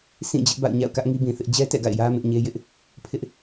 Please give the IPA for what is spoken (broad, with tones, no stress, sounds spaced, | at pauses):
sʰ ĩ˦˨ d͡ʑ ɪ˦ ʔ b a̰˦˨ ʊ̯ ɲ a̰˦˨ ʊ̯ k ä˦ ʔ ŋ i˦ b ĩ˨ θ ɪ˦ ʔ d͡ʑ ɛ˦ t ɛ̰˦˨ ɡ a̰˦˨ ɪ̯ j ä˦ m ɪ˦ ʔ ɲ e˦ j ɪ˦ ʔ | pʰ ɪ˦ ʔ